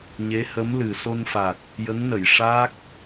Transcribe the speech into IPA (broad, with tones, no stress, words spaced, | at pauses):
ɲe˧˥hə˧˥mlɨ˨˩ so˧nfa˨˩t̚ | jə˧˥ŋnə˨˩˨j ʂa˦˥k̚